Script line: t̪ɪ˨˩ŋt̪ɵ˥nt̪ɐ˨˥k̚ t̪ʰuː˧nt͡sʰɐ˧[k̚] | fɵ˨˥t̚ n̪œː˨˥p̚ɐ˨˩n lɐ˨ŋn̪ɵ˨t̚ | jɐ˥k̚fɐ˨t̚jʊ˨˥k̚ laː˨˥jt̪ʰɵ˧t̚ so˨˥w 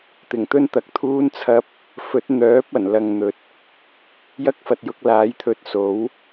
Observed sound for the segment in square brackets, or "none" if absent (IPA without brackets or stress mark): p̚